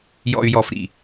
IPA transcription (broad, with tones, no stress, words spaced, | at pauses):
jɔ̰˨y̯jɔ˨fɾḭ˨